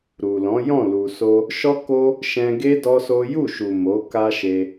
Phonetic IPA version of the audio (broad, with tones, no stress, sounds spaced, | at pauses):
ɾ u˨ l ɔ̃˨˦ j ɔ̃˦˨ l u˨ s o˧ | ʃ ɔ˦ k o˦ | ʃ ɛ̃˧ ɡ e˦ d ɔ˦ s o˦ j u˦˨ ʃ u˨ m o˨˦ k a˦ ʃ e˧